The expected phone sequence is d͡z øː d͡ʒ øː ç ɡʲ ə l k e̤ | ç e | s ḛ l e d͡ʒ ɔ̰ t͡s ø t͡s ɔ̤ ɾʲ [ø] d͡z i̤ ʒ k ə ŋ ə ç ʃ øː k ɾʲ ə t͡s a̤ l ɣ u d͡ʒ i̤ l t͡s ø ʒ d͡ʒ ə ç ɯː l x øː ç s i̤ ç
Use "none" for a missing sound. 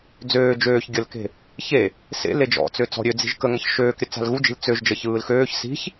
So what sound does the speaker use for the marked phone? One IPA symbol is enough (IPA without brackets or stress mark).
ø